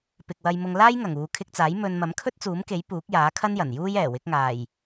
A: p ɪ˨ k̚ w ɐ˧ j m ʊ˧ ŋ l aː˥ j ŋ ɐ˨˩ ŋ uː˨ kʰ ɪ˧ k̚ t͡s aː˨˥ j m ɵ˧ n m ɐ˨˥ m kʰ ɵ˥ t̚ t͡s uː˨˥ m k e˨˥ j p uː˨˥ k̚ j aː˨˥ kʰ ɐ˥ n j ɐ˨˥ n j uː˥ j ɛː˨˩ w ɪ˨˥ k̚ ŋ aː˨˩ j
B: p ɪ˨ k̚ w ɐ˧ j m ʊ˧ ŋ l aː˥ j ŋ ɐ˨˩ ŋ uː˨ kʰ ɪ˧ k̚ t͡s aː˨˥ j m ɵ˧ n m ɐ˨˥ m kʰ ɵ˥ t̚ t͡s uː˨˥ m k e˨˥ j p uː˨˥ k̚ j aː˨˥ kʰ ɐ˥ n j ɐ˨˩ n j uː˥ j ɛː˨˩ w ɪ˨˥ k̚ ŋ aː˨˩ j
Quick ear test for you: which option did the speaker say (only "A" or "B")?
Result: B